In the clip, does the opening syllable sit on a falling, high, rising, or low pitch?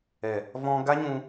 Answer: low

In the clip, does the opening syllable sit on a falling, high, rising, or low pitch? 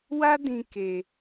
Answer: high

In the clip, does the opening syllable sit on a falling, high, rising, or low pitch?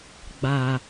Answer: low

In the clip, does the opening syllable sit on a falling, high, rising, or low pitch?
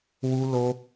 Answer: high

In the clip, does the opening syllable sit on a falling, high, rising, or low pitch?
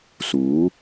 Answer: rising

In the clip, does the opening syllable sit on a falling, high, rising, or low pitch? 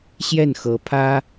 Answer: falling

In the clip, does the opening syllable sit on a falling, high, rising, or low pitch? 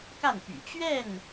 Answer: falling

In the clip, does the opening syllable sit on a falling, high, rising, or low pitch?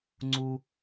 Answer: high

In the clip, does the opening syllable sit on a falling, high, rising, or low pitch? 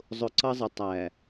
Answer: low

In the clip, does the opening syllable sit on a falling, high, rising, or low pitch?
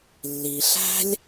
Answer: low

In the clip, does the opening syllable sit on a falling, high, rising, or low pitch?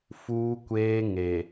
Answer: high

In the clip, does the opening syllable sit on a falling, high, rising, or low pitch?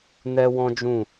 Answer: high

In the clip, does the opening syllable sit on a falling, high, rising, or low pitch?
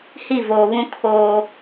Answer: falling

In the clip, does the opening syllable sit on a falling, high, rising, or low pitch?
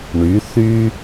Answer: rising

